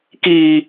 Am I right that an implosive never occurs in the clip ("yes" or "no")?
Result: yes